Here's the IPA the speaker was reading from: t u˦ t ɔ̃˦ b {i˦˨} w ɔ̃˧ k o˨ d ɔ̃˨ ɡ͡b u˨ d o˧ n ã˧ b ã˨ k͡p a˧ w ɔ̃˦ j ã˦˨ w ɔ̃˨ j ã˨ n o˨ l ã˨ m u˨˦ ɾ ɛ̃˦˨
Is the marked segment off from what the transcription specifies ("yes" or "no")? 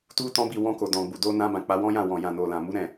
no